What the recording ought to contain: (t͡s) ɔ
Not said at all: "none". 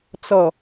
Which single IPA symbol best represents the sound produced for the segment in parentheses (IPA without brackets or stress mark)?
t͡s